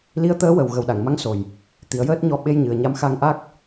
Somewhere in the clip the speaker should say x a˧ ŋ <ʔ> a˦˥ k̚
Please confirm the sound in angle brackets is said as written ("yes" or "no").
yes